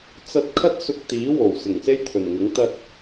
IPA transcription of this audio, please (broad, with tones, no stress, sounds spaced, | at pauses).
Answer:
t͡s ɐ˧ t̚ kʰ ɐ˥ t̚ s ʊ˧ k̚ t̪ iː˨˥ w o˨˩ w s ɪ˨˩ ŋ s e˥ j t̪ʰ ɵ˨˩ n ŋ ɪ˨˥ ŋ t̪ ɐ˧ t̚